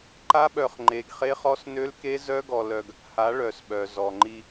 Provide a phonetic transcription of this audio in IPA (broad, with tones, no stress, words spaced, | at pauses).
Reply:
ǃa˦ɓœ˧χ ŋ͡ǃe˧ɡχe˦χ ɔ˦snø˦lke˦ zœ˦ɡɔ˧ lœ˧ɡ | ha˨˦ɭœ˨s ɓœ˨zɔ˨ŋ͡ǃi˧